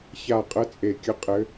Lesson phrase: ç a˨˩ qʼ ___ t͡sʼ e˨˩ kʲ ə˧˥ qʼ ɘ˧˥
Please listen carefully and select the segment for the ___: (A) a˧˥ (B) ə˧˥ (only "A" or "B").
B